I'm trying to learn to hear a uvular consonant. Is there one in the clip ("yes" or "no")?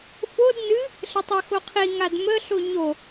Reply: yes